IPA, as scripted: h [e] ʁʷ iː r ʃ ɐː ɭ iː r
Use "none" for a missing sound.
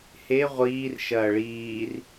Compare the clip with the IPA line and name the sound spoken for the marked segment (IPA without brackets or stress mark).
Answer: e